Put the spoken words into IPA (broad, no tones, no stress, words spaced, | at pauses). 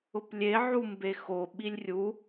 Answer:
ʊplʲe ʕumbexo ɓilʲrʲu